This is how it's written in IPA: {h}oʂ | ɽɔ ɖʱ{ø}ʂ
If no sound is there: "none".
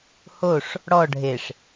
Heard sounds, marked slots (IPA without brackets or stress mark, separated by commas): h, e